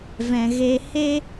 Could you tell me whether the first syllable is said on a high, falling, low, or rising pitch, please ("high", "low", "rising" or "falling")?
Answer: low